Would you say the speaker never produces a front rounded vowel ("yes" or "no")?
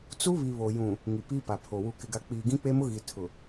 yes